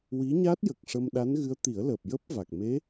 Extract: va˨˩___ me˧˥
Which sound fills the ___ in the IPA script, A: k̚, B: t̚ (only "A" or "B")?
A